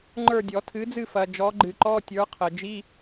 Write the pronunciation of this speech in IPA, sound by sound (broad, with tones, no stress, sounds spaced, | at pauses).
ŋ͡ǃ ə˞˦˨ dʲ ɔ˨˩˦ tʰ ɨ˨˥ d͡z ɨ˦˨ f ɐ˨ d͡ʒ ɔ˨˥ ɡ͡ǃ ɨ˨˩˦ ǃ ɔ˧˥˧ tʲ ə˞˨˥ qʰ ə˨ d͡ʒ i˧˥˧